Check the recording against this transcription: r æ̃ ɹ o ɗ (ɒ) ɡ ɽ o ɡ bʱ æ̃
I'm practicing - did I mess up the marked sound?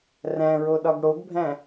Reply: no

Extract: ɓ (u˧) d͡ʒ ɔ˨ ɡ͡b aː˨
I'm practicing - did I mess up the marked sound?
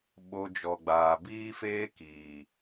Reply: yes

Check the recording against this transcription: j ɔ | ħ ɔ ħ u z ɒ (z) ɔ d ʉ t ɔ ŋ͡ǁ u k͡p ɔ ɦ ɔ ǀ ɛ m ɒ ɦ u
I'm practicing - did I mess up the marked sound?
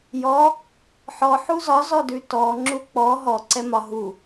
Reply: no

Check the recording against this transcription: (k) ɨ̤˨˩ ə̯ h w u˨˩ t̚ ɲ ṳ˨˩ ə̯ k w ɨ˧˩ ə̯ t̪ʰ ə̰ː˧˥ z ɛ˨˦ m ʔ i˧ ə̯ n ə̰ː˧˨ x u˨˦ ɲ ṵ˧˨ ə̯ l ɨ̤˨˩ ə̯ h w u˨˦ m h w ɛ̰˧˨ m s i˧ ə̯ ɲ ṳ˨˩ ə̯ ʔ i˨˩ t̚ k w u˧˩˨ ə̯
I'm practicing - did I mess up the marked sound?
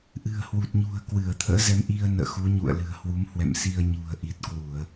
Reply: yes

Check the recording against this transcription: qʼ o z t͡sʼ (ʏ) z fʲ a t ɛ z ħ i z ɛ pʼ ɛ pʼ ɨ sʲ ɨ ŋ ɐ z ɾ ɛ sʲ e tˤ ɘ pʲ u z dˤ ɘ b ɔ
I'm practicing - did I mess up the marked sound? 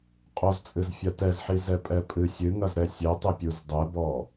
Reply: yes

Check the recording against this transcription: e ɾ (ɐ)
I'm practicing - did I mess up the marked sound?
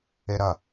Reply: no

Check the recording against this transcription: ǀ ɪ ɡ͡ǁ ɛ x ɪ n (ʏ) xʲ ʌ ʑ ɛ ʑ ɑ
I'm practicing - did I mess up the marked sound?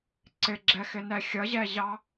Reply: yes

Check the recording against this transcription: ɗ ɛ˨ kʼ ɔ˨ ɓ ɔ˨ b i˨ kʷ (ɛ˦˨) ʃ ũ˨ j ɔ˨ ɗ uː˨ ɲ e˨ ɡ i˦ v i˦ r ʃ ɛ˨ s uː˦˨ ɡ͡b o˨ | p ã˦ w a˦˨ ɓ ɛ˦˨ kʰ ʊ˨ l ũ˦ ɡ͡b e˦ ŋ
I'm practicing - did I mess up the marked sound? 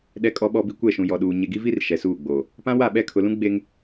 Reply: no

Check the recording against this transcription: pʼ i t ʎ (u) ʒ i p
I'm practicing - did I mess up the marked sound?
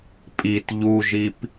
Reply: no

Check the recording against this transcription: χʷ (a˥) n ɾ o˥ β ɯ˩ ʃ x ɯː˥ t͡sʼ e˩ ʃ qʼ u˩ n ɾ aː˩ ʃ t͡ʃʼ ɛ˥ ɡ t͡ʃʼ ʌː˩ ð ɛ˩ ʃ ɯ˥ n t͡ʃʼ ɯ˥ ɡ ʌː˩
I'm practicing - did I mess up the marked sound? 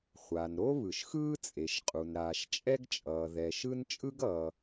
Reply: yes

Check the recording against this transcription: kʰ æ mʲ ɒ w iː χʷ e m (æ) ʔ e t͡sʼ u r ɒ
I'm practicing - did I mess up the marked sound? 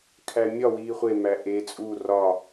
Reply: no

